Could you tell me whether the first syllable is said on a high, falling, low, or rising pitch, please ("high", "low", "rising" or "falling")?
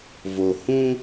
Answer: low